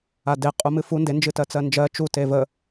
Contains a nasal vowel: no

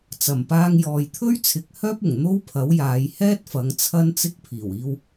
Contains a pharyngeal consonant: no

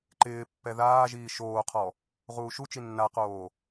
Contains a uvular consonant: yes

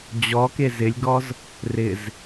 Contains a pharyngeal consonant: no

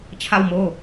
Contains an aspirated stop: yes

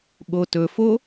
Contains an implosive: yes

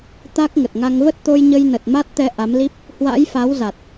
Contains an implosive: no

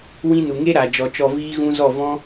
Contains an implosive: no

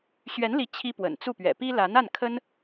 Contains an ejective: no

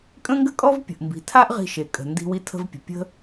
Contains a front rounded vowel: no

